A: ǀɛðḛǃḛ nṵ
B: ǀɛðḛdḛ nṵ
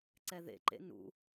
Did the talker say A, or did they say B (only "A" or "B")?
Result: A